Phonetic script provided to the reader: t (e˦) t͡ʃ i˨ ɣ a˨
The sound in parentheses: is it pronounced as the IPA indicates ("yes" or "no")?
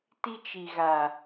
no